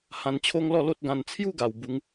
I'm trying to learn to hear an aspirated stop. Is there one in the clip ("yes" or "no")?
yes